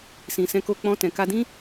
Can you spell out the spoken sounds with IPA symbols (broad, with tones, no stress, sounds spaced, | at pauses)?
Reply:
s ĩ˨ s ɛ̃˧ k o˧ k͡p ɔ̃˧ t ɛ̃˨ k a˧ d ĩ˦